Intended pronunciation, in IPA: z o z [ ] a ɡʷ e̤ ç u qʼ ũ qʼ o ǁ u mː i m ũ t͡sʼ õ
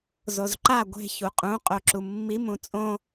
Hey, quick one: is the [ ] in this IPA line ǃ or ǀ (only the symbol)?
ǃ